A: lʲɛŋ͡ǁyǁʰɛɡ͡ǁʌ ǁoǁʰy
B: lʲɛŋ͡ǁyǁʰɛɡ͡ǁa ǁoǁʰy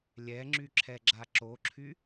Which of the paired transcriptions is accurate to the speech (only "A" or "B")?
B